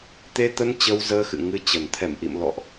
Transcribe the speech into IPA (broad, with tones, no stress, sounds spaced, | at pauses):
t̪ e˧ t̪ ə˧ n t͡ɕ ə˧ w z əː˧ x ɨ̰˧˨ ŋ ɨ˧ t͡ɕ ə˨˩ n t̪ʰ ɛ˧˩ m ʔ ḭ˧˨ m l ɔ̰˧˨ ʔ